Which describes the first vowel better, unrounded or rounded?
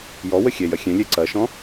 rounded